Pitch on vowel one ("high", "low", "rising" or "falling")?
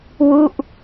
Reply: falling